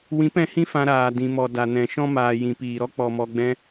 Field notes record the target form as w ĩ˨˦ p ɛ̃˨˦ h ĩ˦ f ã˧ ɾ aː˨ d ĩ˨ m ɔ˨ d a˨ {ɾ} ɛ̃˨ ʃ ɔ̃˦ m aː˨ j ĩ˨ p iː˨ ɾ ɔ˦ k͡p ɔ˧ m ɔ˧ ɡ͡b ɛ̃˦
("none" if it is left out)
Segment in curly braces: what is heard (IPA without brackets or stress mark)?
n